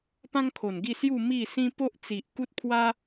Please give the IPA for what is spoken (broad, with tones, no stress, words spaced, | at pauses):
pã˦ŋkʰo˨˩nɡi˥˧sju˥˧ mi˥˧sĩ˦ po˦ʔt͡si˨ʔku˦t̚pʰwa˦